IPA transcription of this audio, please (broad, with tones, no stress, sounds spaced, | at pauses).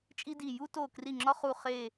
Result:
t͡ʃʼ i˦ d i˧˩ j u˦ t o˧˩ k r i˧˩ ŋ͡ǁ ɒ˦ χ u˧˩ χ e˧˩